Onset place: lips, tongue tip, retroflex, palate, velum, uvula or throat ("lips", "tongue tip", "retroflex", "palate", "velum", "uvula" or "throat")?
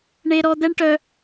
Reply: retroflex